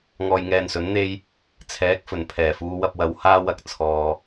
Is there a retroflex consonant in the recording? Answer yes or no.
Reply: no